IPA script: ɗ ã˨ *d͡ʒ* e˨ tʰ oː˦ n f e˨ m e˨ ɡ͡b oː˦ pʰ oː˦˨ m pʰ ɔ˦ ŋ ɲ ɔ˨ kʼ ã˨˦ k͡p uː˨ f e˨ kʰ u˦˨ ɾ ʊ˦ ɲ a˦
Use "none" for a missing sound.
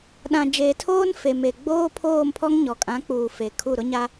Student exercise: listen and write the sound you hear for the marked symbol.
d͡ʒ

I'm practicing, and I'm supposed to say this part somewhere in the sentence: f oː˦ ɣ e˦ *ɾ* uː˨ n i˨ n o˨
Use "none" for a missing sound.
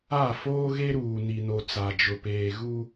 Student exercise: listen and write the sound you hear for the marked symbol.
ɾ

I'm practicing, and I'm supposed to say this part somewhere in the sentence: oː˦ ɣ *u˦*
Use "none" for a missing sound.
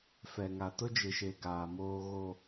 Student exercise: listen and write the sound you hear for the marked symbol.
o˦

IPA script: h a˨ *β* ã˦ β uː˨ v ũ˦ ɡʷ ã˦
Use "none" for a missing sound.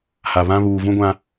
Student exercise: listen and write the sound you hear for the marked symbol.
β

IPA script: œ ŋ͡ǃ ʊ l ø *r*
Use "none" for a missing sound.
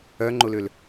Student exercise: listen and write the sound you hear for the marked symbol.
l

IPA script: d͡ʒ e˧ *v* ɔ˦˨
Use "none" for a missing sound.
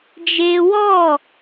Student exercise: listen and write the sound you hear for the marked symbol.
w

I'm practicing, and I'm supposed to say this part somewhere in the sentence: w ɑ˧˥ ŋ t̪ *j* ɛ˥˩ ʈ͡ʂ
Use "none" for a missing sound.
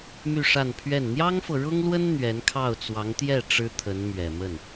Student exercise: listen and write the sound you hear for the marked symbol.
j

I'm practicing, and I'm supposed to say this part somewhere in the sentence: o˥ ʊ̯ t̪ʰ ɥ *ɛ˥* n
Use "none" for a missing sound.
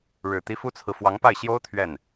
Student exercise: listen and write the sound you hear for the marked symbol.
ɛ˥˩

